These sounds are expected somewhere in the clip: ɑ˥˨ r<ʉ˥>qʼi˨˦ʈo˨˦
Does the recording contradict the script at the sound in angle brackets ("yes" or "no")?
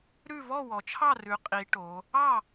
yes